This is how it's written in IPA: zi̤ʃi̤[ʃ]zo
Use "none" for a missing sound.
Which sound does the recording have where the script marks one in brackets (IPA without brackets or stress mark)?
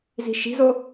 none